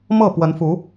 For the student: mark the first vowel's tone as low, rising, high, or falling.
falling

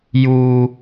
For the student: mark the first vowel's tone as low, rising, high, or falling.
high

